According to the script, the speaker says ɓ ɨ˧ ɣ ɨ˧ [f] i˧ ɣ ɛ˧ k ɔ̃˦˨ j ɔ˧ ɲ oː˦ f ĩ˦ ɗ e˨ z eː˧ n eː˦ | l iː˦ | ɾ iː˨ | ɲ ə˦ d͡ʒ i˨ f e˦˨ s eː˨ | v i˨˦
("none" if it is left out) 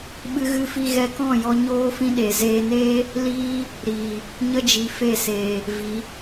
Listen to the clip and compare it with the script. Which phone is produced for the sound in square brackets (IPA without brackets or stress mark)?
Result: f